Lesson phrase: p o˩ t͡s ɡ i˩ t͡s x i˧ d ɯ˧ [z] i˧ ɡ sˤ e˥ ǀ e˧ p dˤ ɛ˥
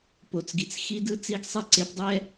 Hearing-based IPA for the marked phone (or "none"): t͡s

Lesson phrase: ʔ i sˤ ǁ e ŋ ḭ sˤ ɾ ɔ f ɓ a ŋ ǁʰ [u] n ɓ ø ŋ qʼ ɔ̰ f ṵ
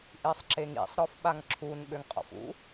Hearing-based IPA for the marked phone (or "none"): u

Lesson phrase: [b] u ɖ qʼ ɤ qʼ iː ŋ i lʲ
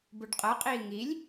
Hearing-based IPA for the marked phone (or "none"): b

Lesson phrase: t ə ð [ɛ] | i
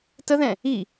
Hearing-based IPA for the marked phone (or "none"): ɛ̃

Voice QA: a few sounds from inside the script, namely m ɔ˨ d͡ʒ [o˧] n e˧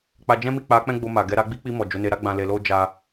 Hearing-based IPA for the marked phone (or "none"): o˨˦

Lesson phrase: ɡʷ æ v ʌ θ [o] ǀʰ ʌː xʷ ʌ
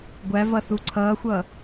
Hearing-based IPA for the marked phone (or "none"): u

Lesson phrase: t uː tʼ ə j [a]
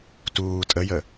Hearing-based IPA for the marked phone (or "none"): ə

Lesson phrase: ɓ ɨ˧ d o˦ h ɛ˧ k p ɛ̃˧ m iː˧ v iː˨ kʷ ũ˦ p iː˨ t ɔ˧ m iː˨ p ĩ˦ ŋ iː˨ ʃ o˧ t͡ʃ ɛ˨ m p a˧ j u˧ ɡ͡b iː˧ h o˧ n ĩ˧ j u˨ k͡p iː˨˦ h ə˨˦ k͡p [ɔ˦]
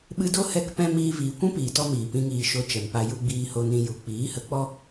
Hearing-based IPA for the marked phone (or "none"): ɔ˦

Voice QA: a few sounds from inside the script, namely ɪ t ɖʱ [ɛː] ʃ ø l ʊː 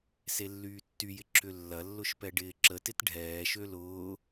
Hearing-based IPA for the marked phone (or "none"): ɛː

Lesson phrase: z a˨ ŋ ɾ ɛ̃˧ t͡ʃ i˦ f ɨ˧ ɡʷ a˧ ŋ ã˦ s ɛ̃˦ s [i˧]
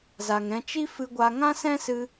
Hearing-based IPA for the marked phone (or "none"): ɨ˧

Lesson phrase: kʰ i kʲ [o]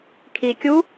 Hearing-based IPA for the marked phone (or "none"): u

